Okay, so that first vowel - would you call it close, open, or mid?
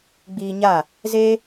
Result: close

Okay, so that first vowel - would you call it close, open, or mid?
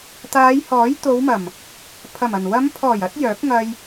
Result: open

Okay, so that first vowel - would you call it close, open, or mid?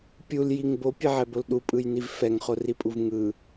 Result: close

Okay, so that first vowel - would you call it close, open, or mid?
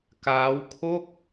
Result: open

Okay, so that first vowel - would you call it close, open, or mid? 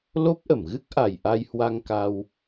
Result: mid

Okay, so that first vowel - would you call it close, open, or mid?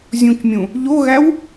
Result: close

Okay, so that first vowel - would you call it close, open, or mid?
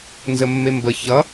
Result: mid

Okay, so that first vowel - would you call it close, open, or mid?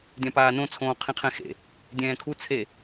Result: open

